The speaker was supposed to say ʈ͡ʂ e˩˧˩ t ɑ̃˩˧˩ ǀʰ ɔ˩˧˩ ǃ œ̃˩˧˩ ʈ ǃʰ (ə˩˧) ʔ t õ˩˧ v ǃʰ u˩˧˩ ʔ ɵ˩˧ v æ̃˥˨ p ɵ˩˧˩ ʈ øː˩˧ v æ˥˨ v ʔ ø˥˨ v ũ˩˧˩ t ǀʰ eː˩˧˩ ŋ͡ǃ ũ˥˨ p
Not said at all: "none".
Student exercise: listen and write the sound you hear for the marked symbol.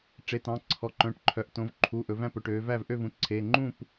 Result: œ˩˧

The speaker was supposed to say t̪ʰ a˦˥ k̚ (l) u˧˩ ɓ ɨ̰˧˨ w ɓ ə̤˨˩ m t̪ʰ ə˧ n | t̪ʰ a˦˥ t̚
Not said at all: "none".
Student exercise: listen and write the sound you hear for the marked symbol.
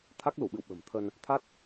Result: l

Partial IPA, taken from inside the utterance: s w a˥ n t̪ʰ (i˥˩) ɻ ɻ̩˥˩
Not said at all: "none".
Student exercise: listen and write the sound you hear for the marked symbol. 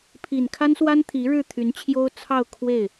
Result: i˧˥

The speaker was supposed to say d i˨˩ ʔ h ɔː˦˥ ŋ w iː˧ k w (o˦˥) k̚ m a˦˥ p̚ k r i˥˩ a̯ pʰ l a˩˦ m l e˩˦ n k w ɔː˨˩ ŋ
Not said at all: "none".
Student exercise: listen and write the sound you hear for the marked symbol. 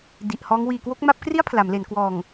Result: o˦˥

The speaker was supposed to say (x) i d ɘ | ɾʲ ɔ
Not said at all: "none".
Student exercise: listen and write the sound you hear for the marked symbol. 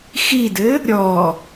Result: x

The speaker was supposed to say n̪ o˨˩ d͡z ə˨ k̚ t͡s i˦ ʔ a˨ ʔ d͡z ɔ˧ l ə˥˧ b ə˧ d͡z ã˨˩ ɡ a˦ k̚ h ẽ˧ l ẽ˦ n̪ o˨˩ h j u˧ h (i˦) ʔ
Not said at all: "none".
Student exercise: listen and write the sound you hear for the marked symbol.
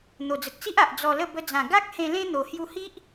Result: i˦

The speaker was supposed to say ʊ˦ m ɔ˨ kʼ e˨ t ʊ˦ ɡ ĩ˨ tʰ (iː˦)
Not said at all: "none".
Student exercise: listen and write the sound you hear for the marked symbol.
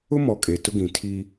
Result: i˦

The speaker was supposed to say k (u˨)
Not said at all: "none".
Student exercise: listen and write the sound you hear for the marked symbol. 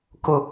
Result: ʊ˨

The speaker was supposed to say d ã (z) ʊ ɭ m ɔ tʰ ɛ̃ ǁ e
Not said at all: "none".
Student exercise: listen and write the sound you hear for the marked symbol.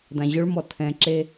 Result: ʑ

